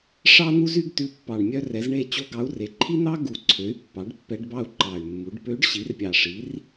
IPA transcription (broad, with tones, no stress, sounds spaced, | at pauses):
ʂ ɑ˥ n̪ u˥ z y˥ ɡ t ʉ˧˥ pː ɑ˨˩ ɳ mʲ œ˥ r ɛ˩˥ z ɳ e˥˧ t͡ɕ o˥ ɡ ɑ˧˥ u̯ r e˩˥ ǃʰ i˥ n̪ ɑ˥ ɡ u˨˩ ǀʰ ø˩˥ y̯ pː ɑ˩˥ ɖ pː ɛ˧˥ ɖ b ɑ˥˧ u̯ ǃ ɑ˨˩ y̯ mː u˩˥ ɖ p ø˧˥ ɖ ɕ i˩˥ r pʲ ɑ˨˩ ʂ i˩˥ r